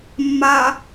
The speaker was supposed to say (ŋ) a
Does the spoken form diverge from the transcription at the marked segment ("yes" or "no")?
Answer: yes